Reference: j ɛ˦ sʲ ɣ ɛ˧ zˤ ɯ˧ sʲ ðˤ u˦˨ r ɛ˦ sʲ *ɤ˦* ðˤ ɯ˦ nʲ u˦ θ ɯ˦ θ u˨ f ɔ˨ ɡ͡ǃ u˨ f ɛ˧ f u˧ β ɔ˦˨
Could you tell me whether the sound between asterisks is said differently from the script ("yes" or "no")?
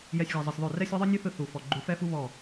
no